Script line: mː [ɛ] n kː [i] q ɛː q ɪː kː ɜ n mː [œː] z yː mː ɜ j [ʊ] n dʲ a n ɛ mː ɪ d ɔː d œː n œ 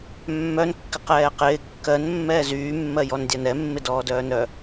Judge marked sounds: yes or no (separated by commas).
no, no, no, no